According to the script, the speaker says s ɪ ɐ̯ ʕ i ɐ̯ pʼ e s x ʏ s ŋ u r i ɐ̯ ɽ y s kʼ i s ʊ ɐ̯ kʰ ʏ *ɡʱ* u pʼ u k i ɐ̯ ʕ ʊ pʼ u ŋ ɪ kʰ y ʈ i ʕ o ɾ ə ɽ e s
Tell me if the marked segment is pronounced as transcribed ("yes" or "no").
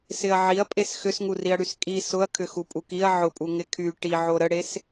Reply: no